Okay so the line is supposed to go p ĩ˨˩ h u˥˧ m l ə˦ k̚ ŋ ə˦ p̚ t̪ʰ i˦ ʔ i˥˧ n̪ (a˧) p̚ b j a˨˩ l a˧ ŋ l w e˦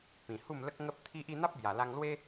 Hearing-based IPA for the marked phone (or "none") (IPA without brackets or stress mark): a˦